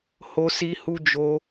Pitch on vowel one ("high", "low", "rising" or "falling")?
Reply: high